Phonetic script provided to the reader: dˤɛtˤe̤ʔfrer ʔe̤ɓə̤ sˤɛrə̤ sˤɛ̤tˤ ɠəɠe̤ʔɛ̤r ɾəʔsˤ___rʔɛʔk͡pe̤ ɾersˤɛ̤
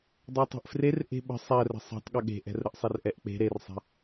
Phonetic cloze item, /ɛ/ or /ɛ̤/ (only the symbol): ɛ